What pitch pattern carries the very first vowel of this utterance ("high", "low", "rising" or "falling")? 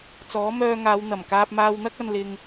rising